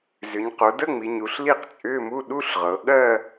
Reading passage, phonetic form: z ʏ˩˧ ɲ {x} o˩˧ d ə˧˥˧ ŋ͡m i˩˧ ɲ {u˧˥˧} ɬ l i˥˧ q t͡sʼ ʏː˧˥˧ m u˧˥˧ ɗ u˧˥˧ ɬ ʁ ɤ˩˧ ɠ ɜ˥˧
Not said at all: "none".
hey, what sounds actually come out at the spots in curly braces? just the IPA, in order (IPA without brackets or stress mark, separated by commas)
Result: q, u˩˧